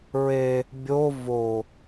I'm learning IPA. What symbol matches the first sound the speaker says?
ɹ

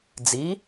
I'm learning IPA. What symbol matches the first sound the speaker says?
d͡z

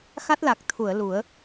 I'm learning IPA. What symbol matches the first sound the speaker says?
x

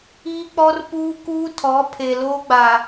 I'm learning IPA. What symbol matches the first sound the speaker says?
iː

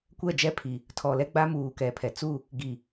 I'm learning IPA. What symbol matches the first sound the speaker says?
kʷ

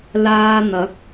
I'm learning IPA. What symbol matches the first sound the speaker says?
l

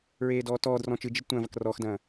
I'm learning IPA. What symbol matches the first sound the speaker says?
ɹ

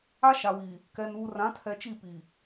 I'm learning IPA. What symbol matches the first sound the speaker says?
a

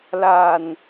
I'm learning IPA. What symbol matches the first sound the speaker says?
l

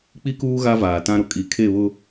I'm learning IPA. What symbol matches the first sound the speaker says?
k͡p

